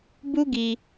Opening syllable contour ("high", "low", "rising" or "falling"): high